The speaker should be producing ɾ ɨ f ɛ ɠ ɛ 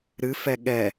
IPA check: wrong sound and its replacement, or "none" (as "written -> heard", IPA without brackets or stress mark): none